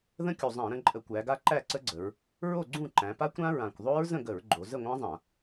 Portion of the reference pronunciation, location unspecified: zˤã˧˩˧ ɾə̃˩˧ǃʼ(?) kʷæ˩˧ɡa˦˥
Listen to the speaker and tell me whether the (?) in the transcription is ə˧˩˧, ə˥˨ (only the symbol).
ə˧˩˧